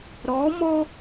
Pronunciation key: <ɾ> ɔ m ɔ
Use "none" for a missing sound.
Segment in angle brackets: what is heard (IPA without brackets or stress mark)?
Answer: ɾ